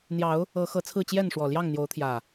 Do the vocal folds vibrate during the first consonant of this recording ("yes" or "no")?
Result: yes